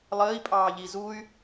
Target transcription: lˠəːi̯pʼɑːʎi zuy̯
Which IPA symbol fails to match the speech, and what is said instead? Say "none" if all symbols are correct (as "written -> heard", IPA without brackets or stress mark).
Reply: none